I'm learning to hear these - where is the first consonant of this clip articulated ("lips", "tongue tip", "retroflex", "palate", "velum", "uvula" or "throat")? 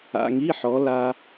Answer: velum